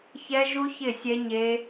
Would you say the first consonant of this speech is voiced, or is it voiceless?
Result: voiceless